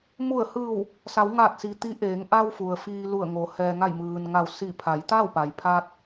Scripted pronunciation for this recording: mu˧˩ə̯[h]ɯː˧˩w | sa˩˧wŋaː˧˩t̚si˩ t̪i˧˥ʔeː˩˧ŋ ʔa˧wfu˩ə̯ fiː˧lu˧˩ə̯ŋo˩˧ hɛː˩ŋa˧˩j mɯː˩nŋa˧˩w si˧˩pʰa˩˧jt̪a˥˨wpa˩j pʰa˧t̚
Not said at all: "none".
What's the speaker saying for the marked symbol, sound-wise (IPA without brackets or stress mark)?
h